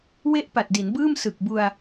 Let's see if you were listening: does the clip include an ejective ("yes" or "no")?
no